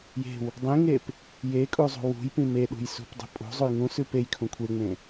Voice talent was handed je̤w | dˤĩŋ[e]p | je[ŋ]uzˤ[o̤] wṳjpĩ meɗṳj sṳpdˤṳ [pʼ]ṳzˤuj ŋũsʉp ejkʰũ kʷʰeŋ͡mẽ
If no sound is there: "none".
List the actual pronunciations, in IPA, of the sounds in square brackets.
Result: e, kʼ, ṳ, pʼ

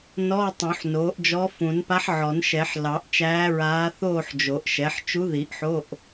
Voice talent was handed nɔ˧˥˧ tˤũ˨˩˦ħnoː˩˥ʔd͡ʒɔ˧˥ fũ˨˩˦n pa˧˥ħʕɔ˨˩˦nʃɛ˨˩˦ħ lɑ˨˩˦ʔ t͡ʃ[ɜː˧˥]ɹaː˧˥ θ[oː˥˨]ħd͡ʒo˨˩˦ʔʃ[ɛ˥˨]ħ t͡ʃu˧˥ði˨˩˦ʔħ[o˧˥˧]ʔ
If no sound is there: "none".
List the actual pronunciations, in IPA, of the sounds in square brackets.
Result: æː˧˥, oː˥˨, ɛ˩˥, o˧˥˧

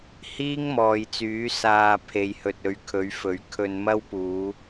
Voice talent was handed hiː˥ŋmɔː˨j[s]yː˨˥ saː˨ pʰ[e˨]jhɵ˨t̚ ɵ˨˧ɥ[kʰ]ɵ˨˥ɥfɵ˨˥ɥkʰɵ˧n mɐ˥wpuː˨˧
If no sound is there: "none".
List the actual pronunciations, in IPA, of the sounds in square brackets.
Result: t͡s, e˨, kʰ

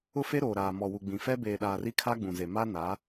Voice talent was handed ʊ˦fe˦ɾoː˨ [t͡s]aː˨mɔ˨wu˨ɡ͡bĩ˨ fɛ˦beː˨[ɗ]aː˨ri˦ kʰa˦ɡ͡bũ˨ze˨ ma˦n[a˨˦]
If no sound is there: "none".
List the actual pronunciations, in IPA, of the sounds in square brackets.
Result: ɾ, ɗ, a˨˦

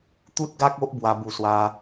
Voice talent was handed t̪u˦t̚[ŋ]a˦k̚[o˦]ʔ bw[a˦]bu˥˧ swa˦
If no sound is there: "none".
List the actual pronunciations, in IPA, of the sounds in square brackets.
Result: ɡ, o˦, a˦

